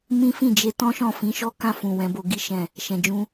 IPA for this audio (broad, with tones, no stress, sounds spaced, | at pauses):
m ĩ˦ f ĩ˦˨ d͡ʒ e˧ t ɔ̃˦ ʃ ɔ̃˦˨ f ĩ˨˦ ʃ ɔ˦ k ã˦˨ f ũ˨ w ɛ̃˨˦ b o˧ ɡ i˦ ʃ ɛ̃˦˨ | ʃ ɛ̃˨ d͡ʒ ũ˧